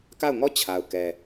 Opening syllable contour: falling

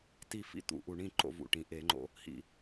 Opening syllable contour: falling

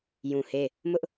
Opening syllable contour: low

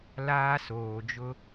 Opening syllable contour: high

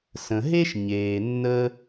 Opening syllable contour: low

